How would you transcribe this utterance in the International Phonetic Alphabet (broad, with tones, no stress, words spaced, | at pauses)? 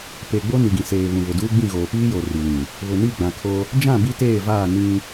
pe˨ɡ͡bo˦ ni˨ɡĩ˨ seː˨ βũ˨βʊ˨duː˦ ɡ͡bĩ˦˨ɣoː˨ piː˦jo˨ ri˨lĩ˨ | βʊ˨ni˦˨ ɡ͡bã˨kʰo˦ | d͡ʒã˦˨ bi˦teː˦˨vaː˦˨ nĩ˦